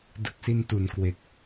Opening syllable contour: low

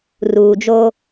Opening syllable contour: low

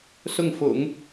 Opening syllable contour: falling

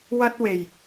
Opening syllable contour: high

